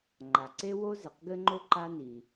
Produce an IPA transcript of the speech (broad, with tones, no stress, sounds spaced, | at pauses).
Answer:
ŋ͡ǃ a˩ ǀ e˥ w o˥ z ɘ˩ q ɡ ɘ˥ ŋ͡ǃ o˥ ǃ a˥ n i˩